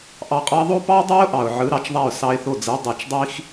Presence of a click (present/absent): absent